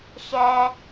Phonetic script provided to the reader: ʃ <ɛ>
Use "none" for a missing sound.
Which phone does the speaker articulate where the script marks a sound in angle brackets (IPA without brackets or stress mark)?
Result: ɛ